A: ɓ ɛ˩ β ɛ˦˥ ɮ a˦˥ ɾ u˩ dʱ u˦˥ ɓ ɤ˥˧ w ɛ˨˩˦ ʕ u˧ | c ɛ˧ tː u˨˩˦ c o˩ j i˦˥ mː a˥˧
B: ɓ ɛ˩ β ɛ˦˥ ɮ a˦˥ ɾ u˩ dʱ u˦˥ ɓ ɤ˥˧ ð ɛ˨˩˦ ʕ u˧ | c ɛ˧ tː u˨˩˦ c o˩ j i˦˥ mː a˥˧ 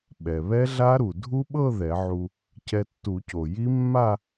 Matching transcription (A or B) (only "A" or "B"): B